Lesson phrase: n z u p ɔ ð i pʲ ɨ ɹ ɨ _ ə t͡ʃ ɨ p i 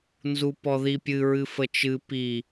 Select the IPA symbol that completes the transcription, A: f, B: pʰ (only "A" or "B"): A